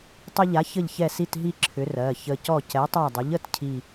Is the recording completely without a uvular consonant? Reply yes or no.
yes